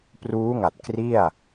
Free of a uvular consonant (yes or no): yes